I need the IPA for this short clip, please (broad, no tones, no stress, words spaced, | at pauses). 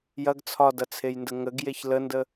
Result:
jɐɡ t͡sʰɒdɐt͡sʰejndə ŋəɡjeç ləndə